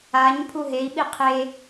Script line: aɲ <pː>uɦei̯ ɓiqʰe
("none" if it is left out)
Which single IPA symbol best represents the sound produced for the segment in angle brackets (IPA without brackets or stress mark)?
pʰ